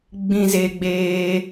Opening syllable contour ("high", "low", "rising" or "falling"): high